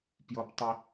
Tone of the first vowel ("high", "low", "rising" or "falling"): high